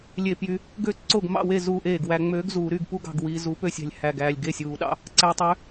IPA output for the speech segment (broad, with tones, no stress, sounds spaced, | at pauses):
lʲ e˧˩ p j y˧ | ɡ ø˥˨ ǀ o˥˨ ɡ m ɑ̰˥˨ w e˥˨ z uː˧ ʔ eː˧˩ ɡ w æ˧ ŋ͡m øː˧˥ ɡ z uː˨˩˦ ɾ y˥˨ ɡ p u˥˨ ɡ ɑ̤˧˩ ɡ w i˧ z u˧˥ p ø˥˨ sʲ æ̤˧˩ lʲ h æ˧˩ ɡ æː˧˩ lʲ ɡ e˥˨ sʲ uː˨˩˦ ɗ ɑ̰˥˨ | ǀ æ˧ tˤ ø˧˥